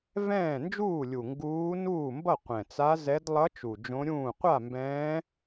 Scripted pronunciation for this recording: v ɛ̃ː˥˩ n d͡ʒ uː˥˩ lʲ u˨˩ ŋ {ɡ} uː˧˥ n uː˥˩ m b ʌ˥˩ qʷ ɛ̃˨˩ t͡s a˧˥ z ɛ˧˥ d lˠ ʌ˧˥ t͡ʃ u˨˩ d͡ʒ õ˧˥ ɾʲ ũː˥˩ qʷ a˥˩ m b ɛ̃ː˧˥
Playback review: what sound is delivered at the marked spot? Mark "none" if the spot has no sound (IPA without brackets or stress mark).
ɡ